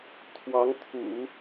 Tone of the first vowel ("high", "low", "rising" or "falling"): rising